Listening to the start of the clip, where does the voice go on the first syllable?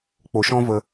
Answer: low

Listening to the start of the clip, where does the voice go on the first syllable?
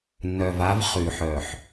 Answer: low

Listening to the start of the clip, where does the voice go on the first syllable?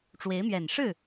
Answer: rising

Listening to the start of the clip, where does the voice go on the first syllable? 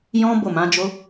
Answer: high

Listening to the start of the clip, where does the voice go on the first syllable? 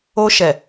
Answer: high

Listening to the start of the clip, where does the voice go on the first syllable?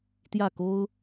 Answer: falling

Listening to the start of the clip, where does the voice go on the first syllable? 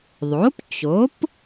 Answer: rising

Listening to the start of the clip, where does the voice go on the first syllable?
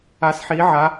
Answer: rising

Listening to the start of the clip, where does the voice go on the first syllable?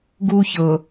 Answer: high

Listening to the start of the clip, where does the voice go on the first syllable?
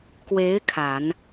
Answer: rising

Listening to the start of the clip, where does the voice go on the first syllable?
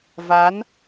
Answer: rising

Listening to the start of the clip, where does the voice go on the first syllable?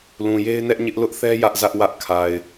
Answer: low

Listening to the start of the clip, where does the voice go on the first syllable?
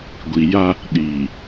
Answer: low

